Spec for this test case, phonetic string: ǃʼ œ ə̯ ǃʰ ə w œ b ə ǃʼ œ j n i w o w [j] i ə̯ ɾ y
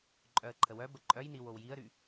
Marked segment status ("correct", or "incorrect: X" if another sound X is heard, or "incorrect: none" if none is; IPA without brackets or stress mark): correct